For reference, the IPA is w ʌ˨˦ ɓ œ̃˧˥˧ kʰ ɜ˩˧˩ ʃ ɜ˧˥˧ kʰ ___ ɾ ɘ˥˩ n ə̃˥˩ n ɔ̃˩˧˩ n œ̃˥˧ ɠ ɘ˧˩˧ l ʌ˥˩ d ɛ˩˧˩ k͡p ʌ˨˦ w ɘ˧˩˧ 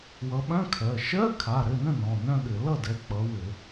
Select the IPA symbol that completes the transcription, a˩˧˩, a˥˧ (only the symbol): a˩˧˩